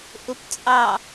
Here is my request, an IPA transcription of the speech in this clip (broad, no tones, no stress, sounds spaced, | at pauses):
ʔ ʊ p t͡sʼ ɑ